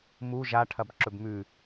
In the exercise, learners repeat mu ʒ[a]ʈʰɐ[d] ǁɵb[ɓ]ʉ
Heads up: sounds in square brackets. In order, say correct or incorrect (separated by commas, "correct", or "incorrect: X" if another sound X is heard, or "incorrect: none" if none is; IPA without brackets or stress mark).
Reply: correct, incorrect: b, incorrect: m